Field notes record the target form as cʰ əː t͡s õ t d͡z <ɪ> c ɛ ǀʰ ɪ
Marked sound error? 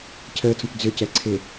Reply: yes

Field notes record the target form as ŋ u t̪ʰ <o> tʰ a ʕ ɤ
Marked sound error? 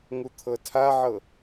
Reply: yes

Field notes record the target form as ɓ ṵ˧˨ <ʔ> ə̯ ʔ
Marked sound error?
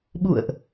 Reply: yes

